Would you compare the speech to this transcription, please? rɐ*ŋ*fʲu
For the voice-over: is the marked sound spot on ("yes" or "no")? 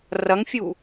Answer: yes